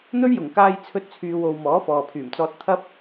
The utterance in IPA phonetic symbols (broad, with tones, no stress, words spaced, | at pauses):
n̪ɵ˥ɥjʊ˨˩ŋkaː˧j t͡sʰɵ˥t̚t͡sʰyː˧ wo˨w mɔː˨˥fɔː˨pʰyː˨˩mt͡sɔː˧t̚ t̪ʰɐ˧p̚